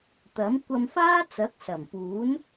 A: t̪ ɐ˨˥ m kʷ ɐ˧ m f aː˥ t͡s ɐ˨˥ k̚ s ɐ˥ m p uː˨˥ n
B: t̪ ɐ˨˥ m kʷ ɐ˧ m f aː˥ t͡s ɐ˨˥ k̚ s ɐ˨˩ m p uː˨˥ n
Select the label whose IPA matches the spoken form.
B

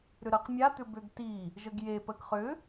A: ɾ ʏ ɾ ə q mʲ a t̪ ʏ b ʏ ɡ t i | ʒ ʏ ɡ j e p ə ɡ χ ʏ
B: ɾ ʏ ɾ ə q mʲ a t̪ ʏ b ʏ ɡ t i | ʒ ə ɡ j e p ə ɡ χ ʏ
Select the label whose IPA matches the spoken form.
B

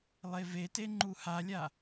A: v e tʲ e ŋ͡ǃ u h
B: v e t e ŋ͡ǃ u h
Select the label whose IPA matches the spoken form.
B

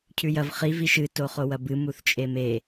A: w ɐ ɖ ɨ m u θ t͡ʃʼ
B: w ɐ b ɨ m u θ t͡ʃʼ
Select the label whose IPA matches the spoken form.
B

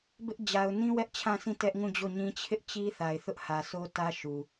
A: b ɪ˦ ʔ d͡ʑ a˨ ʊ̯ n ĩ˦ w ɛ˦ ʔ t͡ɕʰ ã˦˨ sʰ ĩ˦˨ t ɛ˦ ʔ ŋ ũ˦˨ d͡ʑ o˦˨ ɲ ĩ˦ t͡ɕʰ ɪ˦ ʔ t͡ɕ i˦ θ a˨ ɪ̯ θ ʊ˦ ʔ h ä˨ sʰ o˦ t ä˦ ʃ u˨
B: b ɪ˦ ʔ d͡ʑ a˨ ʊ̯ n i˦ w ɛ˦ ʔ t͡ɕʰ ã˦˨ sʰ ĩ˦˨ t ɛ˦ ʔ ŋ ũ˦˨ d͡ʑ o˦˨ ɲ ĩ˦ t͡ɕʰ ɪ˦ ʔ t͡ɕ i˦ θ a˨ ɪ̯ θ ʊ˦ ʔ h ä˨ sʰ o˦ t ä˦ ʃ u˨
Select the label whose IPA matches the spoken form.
A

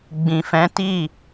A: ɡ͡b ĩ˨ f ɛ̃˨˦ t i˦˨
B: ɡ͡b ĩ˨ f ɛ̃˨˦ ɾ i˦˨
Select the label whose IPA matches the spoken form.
A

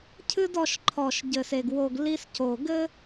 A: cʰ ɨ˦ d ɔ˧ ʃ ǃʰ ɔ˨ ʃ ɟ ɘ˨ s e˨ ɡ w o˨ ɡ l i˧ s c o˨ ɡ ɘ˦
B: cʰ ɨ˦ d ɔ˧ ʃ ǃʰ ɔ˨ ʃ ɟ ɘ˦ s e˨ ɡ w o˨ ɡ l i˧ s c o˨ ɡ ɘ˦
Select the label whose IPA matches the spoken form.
A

